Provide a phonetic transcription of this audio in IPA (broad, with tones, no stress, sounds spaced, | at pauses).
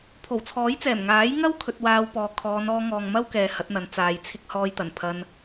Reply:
pʰ o˨˩ w t͡sʰ ɔː˨˥ j t͡s ɛː˨˩ m ŋ aː˨˥ j ŋ ɐ˥ w kʰ ɵ˧ t̚ w aː˧ w p ɔː˨˧ kʰ ɔː˨˧ n ɔː˧ ŋ ɔː˨ ŋ m ɐ˥ w k ɛː˨ h ɐ˨˥ t̚ n̪ ɐ˨˧ n t͡s aː˨ j t͡sʰ ɪ˥ k̚ h ɔː˧ j t̪ ɐ˨˩ n pʰ ɐ˧ n